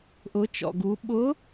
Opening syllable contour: rising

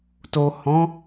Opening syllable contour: low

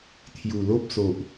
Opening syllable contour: low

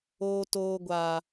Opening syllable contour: low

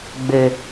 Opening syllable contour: high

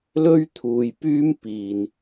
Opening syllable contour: high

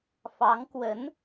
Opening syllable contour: rising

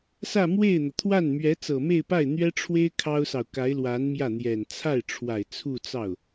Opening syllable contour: falling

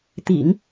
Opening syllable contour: low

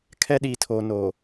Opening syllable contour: high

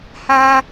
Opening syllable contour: high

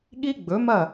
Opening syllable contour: high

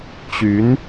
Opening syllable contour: rising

